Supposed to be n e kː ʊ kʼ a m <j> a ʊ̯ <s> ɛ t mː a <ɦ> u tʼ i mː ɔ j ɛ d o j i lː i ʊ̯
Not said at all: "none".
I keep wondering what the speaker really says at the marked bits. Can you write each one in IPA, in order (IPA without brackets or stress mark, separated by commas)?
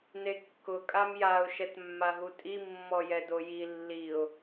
j, ʃ, ɦ